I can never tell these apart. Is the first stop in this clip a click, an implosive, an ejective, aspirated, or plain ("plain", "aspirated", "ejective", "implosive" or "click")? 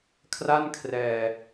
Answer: aspirated